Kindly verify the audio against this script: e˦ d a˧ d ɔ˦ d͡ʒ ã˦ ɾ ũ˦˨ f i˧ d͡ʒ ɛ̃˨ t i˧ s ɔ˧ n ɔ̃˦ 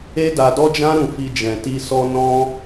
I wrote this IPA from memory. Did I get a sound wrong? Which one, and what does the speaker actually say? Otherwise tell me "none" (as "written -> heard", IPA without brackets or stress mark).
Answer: none